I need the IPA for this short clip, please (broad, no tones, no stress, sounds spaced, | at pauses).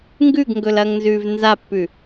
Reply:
ŋ ɡ ʉ ɡ ŋ ɡ ɵ l ɐː ŋ n z ʉː v n z a pː ʉ